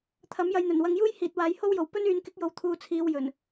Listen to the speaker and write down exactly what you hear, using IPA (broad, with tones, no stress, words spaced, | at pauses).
t̪ʰɐ˨˥mjɐ˧jn̪ɵ˨˩n wɐ˨˧ŋjuː˥jhiː˨t̚ waː˨˥jho˥wjo˨˩w pɵ˥nyː˨˧nkɪ˨˥k̚jo˨w t̪ʰuː˨t͡sʰiː˨w jɵ˨˩n